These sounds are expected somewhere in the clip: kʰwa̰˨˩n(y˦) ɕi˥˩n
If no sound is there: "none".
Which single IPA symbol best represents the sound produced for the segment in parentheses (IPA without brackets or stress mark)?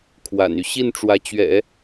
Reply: y˦